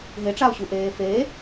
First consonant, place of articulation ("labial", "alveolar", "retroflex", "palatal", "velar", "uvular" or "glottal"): glottal